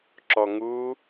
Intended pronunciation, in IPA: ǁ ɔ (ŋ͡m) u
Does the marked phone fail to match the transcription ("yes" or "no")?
yes